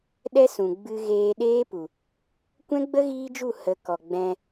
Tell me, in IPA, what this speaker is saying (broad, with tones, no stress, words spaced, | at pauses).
ɗɛ˦sũ˨ɡ͡bɨ˧ ɣeː˧ɗeː˦pu˨ | kʷɛ̃˦ɡ͡bə˦ ɣiː˦d͡ʒu˦˨ hə˨˦ kɔ˨ɡ͡bɛ̃˧